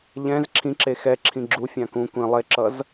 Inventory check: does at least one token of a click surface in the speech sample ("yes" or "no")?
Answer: yes